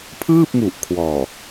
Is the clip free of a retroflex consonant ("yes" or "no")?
yes